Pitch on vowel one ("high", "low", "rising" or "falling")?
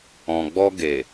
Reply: low